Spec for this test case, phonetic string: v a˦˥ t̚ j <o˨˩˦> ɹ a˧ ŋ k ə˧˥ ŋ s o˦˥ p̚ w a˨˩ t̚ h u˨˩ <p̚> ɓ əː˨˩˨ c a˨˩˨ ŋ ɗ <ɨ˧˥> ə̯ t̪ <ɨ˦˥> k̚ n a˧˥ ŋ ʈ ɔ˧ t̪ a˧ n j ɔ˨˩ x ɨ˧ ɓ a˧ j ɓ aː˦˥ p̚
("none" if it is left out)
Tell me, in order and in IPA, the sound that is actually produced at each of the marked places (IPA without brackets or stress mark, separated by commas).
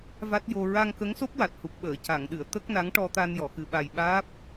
o˧, p̚, ɨ˨˩˨, ə˦˥